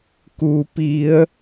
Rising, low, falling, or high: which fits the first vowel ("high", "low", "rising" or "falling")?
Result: low